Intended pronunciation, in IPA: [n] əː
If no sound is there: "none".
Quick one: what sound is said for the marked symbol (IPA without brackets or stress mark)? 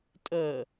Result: tʼ